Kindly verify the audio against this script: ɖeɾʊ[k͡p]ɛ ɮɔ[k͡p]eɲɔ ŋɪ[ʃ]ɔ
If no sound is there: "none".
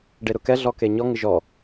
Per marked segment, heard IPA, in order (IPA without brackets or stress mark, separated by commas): k, k, ʒ